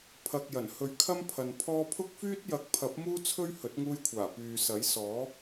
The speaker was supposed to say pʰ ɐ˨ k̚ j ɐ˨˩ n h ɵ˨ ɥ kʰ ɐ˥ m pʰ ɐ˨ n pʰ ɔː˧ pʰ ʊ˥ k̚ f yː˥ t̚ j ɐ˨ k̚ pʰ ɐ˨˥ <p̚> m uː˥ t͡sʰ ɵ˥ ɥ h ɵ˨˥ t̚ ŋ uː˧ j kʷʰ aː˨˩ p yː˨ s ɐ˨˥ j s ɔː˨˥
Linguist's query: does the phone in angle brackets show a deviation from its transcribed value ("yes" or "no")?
no